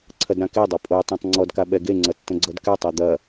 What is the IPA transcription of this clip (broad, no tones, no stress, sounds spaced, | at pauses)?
ǀʰ ɐ d ɾ ã k e dˤ a pʼ o tˤ ã tˤ ŋ͡ǀ ɔ d k a ɓ ɛ ɡ e ŋ͡ǀ ɐ tː ə̃ ɡ͡ǀ ʌ d k ɛ tˤ e d̪ ɐ